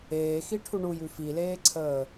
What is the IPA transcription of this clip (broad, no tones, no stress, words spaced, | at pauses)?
eːxiʈʰu ɳujʉ fileːǀʰəː